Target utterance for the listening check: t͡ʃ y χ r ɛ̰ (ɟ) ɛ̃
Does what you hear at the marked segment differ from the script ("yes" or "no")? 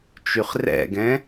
yes